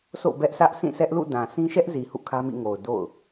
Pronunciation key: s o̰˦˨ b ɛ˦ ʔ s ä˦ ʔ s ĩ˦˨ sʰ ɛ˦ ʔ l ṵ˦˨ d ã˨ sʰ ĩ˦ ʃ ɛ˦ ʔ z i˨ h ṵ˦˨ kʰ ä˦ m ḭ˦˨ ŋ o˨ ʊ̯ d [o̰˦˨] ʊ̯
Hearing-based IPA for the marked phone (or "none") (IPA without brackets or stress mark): o̰˦˨